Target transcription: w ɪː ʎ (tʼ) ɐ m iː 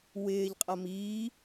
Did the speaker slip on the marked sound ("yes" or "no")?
yes